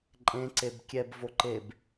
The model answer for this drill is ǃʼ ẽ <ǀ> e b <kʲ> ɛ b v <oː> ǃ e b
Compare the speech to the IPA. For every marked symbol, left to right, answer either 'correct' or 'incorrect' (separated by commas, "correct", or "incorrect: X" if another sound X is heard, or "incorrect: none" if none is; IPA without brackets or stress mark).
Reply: correct, correct, incorrect: o